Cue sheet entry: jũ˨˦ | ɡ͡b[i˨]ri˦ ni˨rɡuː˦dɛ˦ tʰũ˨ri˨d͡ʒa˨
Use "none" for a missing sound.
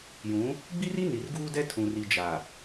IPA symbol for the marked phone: i˦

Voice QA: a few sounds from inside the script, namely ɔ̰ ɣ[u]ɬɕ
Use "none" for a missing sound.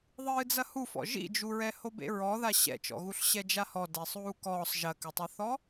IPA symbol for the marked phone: u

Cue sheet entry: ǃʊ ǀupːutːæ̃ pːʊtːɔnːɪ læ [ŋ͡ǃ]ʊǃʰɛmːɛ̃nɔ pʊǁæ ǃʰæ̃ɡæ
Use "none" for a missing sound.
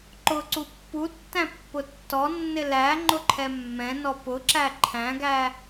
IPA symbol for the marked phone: ŋ͡ǃ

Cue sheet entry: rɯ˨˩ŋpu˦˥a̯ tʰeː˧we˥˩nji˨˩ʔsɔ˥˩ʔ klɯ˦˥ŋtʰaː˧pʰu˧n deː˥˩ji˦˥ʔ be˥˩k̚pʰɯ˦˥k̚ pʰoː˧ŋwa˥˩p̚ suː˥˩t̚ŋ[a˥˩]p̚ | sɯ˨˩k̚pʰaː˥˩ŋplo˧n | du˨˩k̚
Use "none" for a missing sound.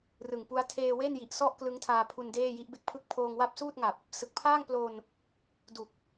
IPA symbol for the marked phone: a˨˩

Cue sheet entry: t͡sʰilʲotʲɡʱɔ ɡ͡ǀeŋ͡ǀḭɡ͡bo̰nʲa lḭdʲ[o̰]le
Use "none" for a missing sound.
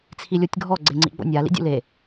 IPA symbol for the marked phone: ṵ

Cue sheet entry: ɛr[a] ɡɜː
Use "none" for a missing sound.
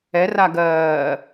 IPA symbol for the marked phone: a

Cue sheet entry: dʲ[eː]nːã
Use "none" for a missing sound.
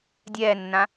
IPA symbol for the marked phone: ɛː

